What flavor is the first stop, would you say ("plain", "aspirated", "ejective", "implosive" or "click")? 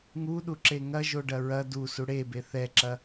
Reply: implosive